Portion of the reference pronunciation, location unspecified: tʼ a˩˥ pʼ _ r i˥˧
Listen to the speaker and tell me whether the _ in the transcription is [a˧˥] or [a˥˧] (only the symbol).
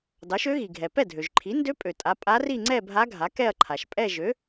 a˧˥